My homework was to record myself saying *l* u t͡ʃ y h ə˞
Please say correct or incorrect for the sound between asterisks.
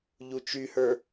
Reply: incorrect